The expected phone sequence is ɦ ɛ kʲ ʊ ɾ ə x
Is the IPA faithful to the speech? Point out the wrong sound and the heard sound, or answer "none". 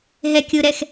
ə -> ɛ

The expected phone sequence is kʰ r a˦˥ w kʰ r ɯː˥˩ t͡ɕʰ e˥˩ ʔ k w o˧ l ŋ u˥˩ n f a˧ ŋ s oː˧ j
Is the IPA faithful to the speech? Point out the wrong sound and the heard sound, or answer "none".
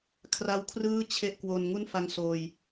l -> n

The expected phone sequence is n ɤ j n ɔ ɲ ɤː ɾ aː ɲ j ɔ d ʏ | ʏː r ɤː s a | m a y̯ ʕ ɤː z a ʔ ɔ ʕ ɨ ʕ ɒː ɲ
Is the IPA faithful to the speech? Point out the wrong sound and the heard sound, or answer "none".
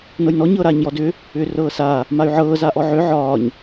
ɨ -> ʏ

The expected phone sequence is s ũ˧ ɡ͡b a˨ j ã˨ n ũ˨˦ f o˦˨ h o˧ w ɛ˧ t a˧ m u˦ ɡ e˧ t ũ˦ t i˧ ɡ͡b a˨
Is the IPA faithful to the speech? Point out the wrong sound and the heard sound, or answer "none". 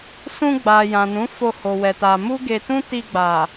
none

